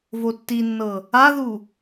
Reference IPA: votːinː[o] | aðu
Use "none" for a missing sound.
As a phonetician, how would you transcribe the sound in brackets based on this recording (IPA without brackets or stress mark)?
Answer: ɤ